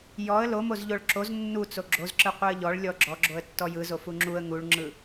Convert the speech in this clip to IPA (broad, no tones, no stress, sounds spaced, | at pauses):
j ɔ ə̯ l o m o z ʎ o ɭ ǁ o z nː u t͡s o ɡ͡ǁ o z ǁ ɯ qʷ ɯ ə̯ ʎ ɔ ɭ lʲ ɔ ɡ͡ǁ ɔ ɡ͡ǁ o ə̯ tː ɔ j ɯ z o f u ŋ͡ǁ u ə̯ ŋ u ɭ ŋ͡ǁ ɯ